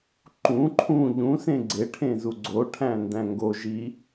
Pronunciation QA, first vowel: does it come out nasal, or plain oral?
nasal